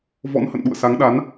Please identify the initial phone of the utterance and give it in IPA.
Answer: v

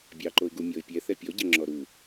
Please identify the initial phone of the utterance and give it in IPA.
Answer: bʲ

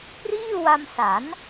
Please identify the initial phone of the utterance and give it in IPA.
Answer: p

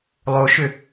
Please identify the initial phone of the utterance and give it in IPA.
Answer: lˠ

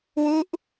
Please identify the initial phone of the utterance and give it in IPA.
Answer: w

